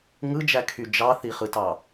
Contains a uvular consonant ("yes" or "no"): yes